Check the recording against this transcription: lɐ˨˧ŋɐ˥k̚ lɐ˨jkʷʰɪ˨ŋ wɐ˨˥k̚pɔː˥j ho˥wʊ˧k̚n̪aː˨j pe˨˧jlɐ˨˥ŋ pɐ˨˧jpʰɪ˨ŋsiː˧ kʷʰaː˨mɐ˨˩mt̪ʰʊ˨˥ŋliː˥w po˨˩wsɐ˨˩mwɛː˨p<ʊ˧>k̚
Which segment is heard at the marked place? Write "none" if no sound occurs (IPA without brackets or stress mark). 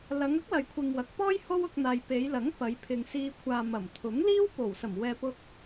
ʊ˧